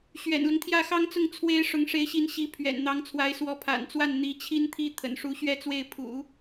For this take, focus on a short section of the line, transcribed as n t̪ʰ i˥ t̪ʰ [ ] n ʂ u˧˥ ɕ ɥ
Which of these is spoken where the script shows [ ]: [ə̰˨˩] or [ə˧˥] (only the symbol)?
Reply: ə̰˨˩